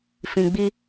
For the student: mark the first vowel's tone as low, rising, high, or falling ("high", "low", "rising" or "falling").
low